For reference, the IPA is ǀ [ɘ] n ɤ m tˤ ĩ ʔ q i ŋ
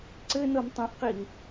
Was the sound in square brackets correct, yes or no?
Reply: yes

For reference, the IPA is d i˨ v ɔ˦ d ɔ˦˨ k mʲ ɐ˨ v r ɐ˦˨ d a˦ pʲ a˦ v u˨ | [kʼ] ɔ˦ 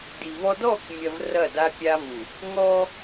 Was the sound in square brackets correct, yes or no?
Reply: no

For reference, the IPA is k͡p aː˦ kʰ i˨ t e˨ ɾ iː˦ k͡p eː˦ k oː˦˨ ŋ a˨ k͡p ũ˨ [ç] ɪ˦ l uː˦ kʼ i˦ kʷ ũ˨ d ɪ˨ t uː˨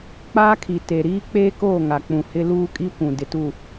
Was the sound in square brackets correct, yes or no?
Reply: no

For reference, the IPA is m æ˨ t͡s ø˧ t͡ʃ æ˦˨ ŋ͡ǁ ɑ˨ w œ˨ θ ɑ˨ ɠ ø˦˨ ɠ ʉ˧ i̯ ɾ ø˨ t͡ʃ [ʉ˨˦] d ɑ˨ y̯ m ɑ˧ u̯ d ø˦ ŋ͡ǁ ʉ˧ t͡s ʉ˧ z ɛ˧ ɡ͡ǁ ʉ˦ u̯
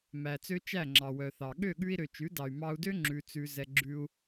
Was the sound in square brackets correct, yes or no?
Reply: yes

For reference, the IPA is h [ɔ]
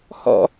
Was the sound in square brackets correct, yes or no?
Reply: no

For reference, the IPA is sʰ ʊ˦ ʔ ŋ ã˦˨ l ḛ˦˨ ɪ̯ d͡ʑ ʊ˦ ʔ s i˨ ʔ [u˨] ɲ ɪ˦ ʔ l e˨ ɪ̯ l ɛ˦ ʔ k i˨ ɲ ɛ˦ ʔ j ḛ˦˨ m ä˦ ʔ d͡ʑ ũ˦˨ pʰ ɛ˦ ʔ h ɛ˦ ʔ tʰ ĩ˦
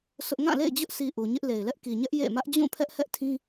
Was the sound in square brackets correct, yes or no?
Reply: yes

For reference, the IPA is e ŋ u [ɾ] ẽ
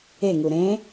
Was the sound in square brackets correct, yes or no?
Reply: yes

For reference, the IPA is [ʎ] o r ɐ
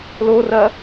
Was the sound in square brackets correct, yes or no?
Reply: no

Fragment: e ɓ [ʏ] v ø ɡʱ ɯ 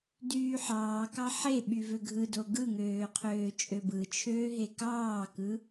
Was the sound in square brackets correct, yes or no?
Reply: no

